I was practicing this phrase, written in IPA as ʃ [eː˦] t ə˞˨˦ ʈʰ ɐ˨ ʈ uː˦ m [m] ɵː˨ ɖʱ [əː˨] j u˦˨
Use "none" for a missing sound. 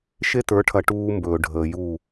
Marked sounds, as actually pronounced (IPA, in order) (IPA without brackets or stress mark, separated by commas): e˦, b, əː˨